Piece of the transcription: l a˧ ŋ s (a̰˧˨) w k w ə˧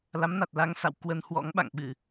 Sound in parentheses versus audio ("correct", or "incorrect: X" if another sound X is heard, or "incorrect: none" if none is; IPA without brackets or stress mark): correct